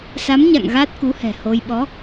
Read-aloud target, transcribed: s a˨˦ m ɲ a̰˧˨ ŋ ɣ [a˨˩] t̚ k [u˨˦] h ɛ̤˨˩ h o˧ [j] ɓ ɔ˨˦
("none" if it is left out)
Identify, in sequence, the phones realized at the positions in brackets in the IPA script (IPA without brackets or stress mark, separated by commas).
a˦˥, u˨˦, j